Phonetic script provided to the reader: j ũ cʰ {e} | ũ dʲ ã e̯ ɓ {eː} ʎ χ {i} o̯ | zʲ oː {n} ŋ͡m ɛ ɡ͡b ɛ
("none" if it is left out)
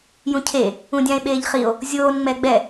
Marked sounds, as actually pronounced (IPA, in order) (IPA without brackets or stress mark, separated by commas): e, eː, i, n